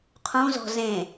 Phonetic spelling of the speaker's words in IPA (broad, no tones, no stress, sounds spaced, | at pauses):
qʰ ũ z ɔ̤ z ẽ